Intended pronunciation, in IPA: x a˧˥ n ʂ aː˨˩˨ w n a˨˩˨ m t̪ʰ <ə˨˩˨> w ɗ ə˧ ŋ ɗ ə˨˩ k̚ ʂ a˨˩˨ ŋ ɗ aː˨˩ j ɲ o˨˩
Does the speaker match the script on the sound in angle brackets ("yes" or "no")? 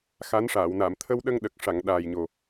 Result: no